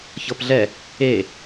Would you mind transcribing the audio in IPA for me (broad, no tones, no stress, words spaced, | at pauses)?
çɤpɮɛ | e